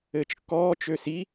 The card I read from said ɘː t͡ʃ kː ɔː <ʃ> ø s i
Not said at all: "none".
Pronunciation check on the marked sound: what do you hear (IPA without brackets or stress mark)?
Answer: t͡ʃ